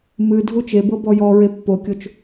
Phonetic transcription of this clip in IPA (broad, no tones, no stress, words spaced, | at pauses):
mɨ dʱut͡ʃebɤ bɔjɔɹe pːokʲot͡ʃ